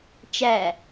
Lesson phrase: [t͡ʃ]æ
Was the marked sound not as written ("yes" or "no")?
no